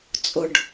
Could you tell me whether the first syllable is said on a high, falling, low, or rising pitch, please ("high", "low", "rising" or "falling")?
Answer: low